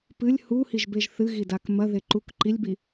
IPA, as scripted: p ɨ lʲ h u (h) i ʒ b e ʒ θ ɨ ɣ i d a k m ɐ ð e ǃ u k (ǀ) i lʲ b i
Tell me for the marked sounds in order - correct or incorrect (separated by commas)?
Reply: correct, incorrect